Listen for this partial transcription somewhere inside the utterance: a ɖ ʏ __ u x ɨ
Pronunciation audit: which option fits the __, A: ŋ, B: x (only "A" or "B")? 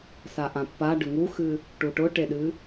A